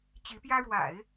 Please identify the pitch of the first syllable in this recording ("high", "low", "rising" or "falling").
rising